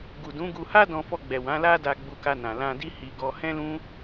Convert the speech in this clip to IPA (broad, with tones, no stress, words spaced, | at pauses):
ɡu˨dũ˨˦ɡu˧ ha˦dɔ̃˧fɔ˧ɡ͡bɛ˨ wã˨˦la˦ da˧ ɡ͡bu˧ka˧nã˨ lã˧di˦ hi˧ ɡɔ˧hɛ̃˦lũ˦